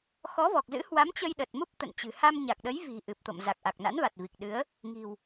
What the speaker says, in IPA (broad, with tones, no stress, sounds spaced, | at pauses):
x ɔ˨˦ v ɔ˨˩ k̚ z ɨ̰˧˥ h w a˨˦ m t͡ɕ ə˧ j ɗ ə˨˩ t̚ m u˦˥ p̚ t̪ ə̰˧˨ n t͡ɕ ɨ̤˨˩ h a˧ m ɲ a˨˩ k̚ ɗ ə˨˦ j v i̤˨˩ ʔ ɨ˨˩ p̚ t̪ o̰˧˨ m z a˨˩ k̚ ʔ a˨˩ k̚ n a̰˧˥ n v a˨˩ t̚ v i˨˩ k̚ ɗ ɨ˨˦ ə̯ | ŋ i̤˨˩ w